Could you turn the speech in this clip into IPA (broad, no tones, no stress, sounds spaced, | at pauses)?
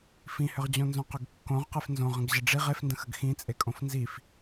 f ĩ h ʏ ʁ d͡ʑ õ n z õ q ʏ ɡ kː õ ʁ q e f n z õ ʁ ə̃ ɡ ʑ ə ɖ͡ʐ i ʁ e f n d ə̃ x ə ɡ x ĩ t͡sʼ e kʼ õ f n z i f